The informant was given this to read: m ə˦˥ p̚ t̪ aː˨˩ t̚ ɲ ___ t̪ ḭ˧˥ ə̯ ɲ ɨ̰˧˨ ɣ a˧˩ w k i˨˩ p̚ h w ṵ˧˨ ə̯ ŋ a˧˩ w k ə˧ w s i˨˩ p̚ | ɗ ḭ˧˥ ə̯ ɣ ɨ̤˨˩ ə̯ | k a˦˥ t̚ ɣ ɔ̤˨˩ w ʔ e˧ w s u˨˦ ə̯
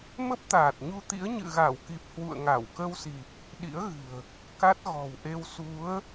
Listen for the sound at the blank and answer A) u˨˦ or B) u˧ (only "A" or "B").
B